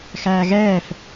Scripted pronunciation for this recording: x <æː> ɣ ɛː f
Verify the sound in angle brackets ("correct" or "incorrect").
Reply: correct